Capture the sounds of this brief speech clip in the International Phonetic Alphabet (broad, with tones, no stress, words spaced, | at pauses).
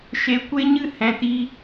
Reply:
ʃe˨ kʷe˦ɲɨ˦˨ hɛ̃˨ti˧